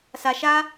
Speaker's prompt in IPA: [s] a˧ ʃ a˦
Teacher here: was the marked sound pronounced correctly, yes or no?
yes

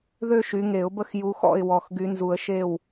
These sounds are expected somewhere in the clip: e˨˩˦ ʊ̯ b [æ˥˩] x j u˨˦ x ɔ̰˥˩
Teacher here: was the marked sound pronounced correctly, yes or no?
no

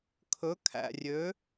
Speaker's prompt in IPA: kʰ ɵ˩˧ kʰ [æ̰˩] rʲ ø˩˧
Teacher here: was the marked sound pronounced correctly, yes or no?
yes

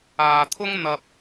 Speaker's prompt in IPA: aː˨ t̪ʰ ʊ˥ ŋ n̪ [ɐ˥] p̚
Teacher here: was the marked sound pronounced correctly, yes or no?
no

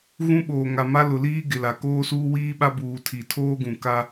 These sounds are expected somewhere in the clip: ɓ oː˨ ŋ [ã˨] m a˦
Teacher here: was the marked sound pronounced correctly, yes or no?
no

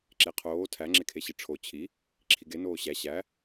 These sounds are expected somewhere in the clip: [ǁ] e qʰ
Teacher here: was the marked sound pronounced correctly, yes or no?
yes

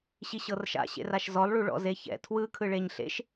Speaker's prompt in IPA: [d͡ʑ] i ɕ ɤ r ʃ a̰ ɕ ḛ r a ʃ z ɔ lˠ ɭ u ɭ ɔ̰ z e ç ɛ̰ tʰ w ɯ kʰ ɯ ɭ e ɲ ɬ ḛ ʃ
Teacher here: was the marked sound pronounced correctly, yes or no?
no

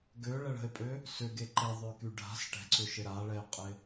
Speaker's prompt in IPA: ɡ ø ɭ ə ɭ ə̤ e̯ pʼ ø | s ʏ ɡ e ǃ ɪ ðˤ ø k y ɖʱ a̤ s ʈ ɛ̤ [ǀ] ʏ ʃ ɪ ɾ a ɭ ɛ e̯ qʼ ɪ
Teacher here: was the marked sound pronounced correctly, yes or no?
yes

